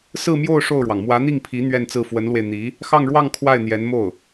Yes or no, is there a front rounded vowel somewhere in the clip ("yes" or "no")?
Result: no